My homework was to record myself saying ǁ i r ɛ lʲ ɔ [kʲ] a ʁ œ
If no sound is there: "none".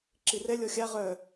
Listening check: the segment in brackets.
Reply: xʲ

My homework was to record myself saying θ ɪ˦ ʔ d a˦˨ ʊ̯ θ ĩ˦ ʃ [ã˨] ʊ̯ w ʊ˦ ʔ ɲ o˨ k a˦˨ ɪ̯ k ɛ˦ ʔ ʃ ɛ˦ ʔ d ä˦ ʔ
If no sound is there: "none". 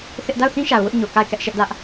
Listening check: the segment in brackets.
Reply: a˨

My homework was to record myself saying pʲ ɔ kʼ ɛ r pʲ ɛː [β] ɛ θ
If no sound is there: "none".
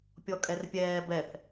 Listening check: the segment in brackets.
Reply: b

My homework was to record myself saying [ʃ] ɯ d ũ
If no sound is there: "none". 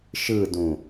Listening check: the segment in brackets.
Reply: ʃ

